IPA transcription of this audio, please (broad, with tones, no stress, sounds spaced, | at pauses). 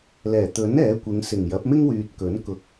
l ɛː˨˩ t̪ ɵ˨˥ n ɛː˨˥ kʷ ɪ˨˧ ŋ s ɪ˨˩ ŋ j ɐ˨˥ p̚ m ɪ˥ ŋ w yː˨ t̚ k ɵ˨˥ n k ʊ˨ k̚